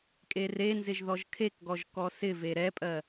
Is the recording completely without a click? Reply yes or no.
yes